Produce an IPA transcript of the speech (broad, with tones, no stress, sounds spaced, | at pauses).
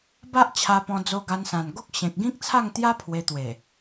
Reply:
b a˦ ʔ t͡ɕʰ a˧ p ɔ̃˧ d͡z o˧ ɡ a˧ n s ã˨˩ n ɡ o˦ k̚ ɕ ẽ˨ k̚ ɡ ĩ˦ k̚ t͡sʰ a˥˧ ŋ t̪ j a˦ pʰ w e˧ t̪ w e˨˩